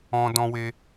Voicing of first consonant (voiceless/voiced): voiced